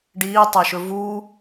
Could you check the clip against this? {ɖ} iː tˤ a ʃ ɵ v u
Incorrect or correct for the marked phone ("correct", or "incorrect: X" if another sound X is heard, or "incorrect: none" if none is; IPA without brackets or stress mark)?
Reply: correct